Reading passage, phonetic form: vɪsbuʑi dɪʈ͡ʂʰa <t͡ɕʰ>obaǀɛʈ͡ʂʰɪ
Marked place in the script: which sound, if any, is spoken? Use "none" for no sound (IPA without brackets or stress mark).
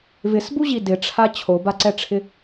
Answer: t͡ɕʰ